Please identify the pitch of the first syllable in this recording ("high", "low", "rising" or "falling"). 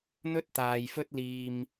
high